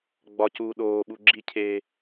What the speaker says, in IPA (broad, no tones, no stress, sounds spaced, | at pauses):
ɡ͡b ɒ c uː ɗ oː ɓ u ɡ͡ǁ i cʰ eː